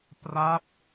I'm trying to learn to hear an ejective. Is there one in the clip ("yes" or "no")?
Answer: no